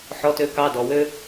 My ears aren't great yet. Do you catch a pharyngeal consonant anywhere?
yes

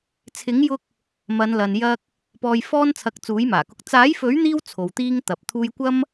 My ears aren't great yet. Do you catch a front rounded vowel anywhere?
no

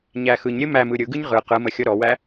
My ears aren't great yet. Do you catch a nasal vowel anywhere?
no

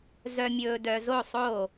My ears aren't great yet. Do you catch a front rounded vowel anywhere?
yes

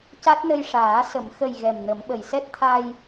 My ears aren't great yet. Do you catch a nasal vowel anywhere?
no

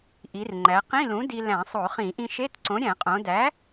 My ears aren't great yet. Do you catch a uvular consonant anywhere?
yes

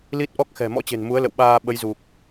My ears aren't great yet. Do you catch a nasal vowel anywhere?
no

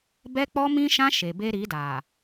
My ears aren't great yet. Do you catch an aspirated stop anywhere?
no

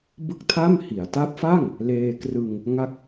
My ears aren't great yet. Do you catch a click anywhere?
no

